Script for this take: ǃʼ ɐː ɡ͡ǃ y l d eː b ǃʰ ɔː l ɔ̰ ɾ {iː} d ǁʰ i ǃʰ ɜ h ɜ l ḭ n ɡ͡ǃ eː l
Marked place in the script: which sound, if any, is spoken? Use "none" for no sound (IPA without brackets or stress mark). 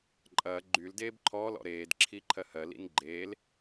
eː